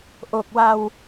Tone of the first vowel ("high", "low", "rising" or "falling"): low